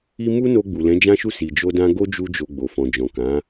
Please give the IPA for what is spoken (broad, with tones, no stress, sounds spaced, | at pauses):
i˦ m u˦ n o˧ ɡ͡b u˨ l ɛ̃˨˦ d͡ʒ ã˦ ʃ u˦˨ s i˨ d͡ʒ o˧ d ã˧ ɡ o˦ d͡ʒ u˧ d͡ʒ o˨ ɡ͡b o˨ f ɔ̃˨ d͡ʒ ɔ̃˨ k ã˨˦